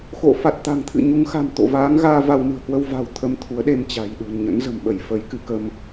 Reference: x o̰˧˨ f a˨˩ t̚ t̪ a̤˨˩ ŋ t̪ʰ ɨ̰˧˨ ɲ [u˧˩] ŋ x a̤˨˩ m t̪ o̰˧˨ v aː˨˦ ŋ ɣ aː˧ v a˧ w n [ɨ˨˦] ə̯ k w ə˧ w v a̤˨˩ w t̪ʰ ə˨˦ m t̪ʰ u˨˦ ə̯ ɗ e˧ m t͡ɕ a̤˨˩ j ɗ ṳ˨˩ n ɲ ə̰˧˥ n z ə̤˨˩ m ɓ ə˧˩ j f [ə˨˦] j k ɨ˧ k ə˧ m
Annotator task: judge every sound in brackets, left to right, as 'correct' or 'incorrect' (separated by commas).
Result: incorrect, incorrect, correct